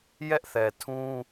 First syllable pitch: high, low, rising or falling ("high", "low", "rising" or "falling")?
high